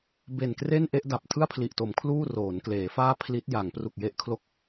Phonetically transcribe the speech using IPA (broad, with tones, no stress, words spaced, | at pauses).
be˨˩nkre˥˩n ʔe˥˩ʔda˨˩p̚ tʰɯ˥˩a̯pʰli˨˩ʔto˩˦m kʰluː˥˩roː˩˦nkleː˩˦faː˥˩ pʰli˦˥t̚ja˩˦ŋ pru˨˩k̚je˦˥ʔkʰlo˦˥k̚